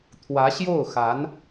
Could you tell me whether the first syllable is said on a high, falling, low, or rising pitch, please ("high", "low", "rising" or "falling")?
rising